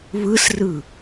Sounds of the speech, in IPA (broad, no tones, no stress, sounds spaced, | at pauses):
β ɯ s r ɯ